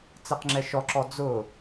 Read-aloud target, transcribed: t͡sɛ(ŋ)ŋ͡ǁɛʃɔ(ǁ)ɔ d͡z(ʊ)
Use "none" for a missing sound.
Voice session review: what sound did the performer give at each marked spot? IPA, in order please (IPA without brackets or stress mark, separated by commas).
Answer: q, ǁ, ʊ